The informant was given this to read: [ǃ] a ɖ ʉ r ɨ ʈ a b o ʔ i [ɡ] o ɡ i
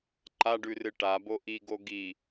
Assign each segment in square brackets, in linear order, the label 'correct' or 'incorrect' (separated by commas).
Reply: correct, correct